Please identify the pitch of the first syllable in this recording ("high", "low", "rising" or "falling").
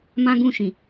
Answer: high